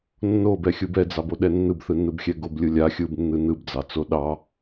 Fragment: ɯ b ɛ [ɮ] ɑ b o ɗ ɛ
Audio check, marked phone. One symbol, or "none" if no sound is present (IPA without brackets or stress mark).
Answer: d͡z